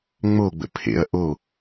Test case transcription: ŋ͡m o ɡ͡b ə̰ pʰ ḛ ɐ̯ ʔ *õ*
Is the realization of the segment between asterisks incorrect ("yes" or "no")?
yes